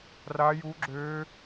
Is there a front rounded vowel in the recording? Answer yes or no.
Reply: yes